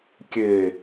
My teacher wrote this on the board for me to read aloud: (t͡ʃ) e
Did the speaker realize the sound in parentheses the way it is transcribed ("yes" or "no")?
no